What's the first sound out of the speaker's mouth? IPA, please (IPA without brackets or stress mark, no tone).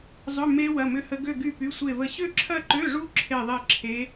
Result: zˤ